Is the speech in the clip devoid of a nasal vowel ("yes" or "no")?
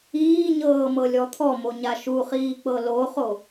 yes